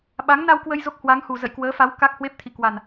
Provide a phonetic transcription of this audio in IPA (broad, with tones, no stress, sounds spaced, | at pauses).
ɓ a˨˦ ŋ n a˧ w k w ə˧ j z o˦˥ k̚ h w a˨˦ ŋ h u˨˩ z ə̰˧˨ j k w əː˨˦ f a˨˦ w k a˦˥ k̚ h w e˦˥ p̚ t̪ʰ ḭ˧˨ k w a˨˩ n